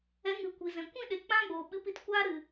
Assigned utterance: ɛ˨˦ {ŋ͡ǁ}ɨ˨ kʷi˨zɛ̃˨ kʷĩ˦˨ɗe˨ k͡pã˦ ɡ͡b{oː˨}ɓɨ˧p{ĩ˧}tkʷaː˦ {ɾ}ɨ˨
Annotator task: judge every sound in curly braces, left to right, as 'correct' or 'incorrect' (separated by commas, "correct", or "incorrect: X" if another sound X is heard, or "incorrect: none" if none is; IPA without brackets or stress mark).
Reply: incorrect: ŋ, correct, incorrect: i˧, correct